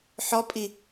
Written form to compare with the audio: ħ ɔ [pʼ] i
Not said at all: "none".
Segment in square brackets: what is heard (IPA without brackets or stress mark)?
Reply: pʼ